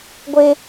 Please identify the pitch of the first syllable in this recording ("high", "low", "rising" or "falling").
high